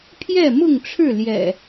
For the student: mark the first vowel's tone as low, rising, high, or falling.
falling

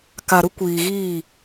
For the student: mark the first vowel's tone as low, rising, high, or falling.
low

